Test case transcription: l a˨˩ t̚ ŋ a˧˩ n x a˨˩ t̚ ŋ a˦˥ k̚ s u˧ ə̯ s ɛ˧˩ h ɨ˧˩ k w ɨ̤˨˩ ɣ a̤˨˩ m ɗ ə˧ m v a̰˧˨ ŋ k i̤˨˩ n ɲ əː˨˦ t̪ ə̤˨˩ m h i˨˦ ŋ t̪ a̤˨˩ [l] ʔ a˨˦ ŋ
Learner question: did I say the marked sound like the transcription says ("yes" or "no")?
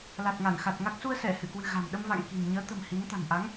no